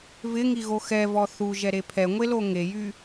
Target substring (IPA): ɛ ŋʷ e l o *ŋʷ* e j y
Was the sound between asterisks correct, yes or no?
no